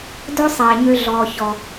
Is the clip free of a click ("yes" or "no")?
yes